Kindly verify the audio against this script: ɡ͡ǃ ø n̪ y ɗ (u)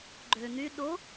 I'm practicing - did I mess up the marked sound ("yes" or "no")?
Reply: yes